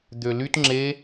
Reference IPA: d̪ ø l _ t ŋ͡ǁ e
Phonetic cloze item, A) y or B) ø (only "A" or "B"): A